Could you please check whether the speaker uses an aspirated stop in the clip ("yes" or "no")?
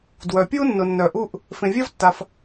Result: no